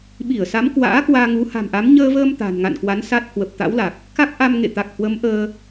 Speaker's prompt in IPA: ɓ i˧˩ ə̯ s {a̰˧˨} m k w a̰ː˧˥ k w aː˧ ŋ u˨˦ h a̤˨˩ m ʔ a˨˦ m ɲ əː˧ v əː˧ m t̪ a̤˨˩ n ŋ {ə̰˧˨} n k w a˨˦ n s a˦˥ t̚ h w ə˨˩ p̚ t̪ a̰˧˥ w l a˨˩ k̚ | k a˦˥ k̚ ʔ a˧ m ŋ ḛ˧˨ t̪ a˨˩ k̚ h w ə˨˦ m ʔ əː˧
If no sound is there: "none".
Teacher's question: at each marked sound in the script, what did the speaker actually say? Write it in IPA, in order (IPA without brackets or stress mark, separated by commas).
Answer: a˨˦, a̰˧˨